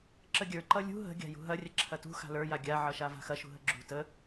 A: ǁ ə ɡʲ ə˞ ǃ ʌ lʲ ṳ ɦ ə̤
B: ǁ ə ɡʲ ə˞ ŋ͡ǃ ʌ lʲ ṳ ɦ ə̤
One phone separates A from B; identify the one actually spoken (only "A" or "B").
A